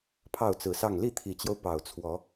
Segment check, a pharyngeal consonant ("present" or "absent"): absent